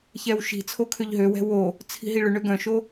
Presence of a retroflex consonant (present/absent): present